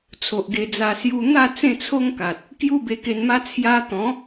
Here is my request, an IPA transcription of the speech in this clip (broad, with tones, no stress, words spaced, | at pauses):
t͡sʰo˨ʔɡe˧d͡za˧ sju˧ n̪a˥˧ t͡sẽ˥˧t͡sʰo˦ŋka˨t̚ | kju˦be˧ke˧nma˦ t͡sʰja˧t̪ɔ̃˨˦